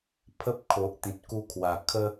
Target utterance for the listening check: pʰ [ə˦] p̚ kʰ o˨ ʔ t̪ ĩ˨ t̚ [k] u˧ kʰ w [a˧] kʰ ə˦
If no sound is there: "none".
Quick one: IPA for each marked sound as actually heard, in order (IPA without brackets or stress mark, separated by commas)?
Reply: ə˦, k, a˨˩